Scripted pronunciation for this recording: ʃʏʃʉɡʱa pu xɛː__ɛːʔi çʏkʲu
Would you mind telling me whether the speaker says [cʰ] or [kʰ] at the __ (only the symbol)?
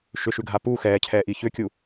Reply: cʰ